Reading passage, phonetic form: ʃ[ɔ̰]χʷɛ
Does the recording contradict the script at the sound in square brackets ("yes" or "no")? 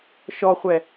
yes